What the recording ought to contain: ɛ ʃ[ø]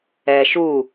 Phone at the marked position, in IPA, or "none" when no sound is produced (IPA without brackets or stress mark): u